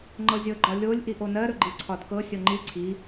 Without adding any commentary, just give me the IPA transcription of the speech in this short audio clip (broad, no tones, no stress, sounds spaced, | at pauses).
ŋ͡ǃ ɤ zʲ ɤ ɡ͡ǃ ɒ lʲ o lʲ ʔ i ʔ o n ɜ ɾ ɵ ɡ͡ǃ i ǀʰ ɒ d k ɤ sʲ ɔ ŋ͡ǃ i ǀʰ i